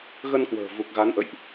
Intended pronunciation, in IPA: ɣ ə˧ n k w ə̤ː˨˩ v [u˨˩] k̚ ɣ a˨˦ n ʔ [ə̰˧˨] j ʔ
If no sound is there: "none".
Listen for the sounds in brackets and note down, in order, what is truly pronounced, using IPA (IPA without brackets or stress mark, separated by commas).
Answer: u˨˩, ə̰˧˨